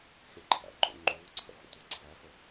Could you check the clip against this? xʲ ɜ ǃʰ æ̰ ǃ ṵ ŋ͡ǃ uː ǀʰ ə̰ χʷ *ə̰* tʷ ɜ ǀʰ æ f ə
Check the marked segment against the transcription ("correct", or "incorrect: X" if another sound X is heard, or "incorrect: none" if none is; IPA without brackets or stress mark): correct